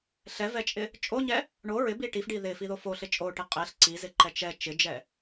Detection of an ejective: present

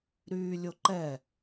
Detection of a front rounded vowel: present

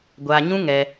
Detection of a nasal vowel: present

